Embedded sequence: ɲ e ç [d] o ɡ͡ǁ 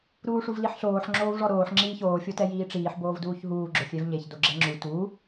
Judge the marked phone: correct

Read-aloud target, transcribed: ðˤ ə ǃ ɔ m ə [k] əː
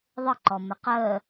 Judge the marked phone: incorrect: q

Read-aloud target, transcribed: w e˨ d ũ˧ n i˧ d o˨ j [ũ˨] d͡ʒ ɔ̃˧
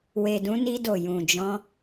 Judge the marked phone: correct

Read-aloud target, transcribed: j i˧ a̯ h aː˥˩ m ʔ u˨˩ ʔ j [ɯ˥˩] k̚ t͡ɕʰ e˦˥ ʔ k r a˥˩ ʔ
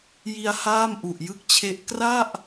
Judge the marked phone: correct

